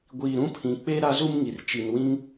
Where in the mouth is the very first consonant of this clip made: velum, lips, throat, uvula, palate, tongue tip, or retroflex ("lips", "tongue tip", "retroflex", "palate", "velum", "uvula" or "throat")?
velum